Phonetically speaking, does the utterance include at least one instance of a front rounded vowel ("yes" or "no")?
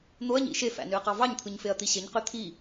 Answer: yes